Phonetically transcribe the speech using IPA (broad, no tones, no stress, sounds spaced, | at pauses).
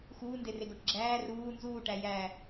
x uː n d e r e ɡ o ʈ ɡ͡ǁ æː r uː n z uː ʈ æ j æ